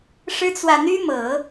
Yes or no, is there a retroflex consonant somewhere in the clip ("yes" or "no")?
yes